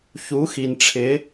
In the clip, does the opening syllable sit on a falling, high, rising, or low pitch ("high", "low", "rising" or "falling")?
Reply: rising